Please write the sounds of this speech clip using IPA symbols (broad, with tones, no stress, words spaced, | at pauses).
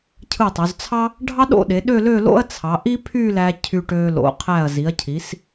cʰɯ˧˩tˤo˩˧zt͡sʰɑ˥ | ɖʱɑ˥ɗo̰˥˧ɗe˩˧ɗø˥˧ lø˥˧lo̰˥ɐ̯t͡sʰɑ˩˧ ʔi˥pʰy˥˧læ˧ cʰy˧ ʈø˧ lo̰˩˧qʰæ˧˩ɐ̯zi˩˧ɐ̯cʰi˩˧s